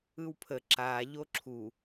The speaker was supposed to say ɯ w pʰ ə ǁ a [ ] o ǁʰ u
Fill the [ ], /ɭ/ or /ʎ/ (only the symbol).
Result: ʎ